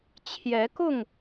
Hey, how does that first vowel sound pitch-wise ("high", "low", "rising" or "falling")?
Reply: rising